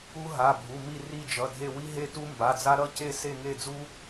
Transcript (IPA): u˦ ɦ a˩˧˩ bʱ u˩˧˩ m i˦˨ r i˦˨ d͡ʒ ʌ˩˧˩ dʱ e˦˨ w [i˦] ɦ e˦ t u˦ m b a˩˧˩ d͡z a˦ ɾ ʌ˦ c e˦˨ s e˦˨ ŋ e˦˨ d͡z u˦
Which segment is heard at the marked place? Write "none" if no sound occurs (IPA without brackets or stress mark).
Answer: i˦